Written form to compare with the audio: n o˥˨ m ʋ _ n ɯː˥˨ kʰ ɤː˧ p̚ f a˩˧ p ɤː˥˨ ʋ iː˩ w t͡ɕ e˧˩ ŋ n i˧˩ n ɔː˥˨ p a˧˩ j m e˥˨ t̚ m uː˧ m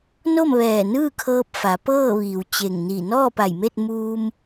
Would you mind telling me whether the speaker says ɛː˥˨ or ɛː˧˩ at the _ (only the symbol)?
ɛː˧˩